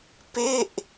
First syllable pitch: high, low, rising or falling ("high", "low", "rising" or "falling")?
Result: falling